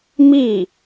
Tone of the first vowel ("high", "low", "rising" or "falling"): falling